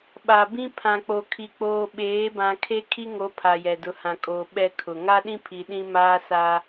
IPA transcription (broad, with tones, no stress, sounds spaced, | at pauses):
ɓ a˨ b ĩ˦ pʰ ã˨ k͡p o˨ kʰ i˨ k͡p oː˨ ɓ eː˨˦ b ã˨ kʰ e˦ kʰ i˦ ŋ o˨˦ pʰ a˨ j ɛ˨ d ʊ˨˦ h ã˨ kʼ oː˨ ɓ ɛ˦ kʰ ʊ˨ ŋ a˦ ɗ ĩ˦ pʰ i˨ ɗ ĩ˦ m aː˦ s aː˦